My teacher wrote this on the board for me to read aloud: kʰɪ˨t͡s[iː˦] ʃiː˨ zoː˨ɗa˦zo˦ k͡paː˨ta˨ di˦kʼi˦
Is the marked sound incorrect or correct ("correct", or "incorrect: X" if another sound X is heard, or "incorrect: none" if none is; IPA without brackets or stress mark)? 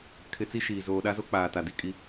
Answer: incorrect: i˦